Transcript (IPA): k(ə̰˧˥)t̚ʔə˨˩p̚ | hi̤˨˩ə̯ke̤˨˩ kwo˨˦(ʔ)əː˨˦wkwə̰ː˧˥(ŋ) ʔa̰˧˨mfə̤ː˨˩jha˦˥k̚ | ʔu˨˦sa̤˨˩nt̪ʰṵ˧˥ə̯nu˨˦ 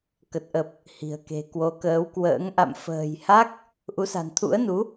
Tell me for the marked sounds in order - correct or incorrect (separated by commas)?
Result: incorrect, incorrect, correct